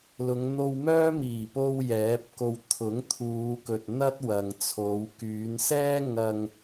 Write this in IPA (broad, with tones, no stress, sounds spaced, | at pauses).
l ʊ˨˧ ŋ n̪ o˧ w m œː˥ m iː˨˩ p o˧ w j ɛː˨˥ p̚ k o˧ w t̪ʰ ʊ˨˥ ŋ t̪ʰ uː˨˧ k ɵ˨ t̚ n̪ ɐ˥ t̚ w ɐ˨ ŋ t͡sʰ o˨˧ w k yː˨˧ n s ɛː˥ ŋ ɐ˧ ŋ